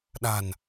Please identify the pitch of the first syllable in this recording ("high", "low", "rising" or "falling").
low